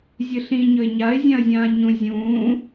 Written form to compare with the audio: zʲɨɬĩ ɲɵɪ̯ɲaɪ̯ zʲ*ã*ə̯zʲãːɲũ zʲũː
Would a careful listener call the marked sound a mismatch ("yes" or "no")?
no